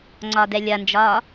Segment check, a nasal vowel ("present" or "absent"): absent